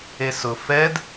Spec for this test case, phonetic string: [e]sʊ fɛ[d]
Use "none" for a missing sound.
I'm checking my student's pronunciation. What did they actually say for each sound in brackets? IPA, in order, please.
e, d

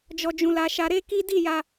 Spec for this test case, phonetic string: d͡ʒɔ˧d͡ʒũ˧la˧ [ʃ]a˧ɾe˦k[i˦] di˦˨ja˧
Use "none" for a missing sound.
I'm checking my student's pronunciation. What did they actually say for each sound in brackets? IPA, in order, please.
ʃ, i˦

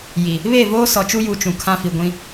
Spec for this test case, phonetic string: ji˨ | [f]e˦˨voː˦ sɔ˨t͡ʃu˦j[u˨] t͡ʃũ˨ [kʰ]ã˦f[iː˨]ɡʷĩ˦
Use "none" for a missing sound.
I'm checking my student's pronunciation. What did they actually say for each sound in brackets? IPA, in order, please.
β, u˨, kʰ, i˨

